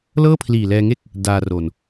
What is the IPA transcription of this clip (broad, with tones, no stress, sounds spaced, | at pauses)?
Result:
l ɤː˥˩ pʰ l iː˨˩ l ɛː˧ ŋ e˥˩ k̚ | d aː˧ r o˨˩ n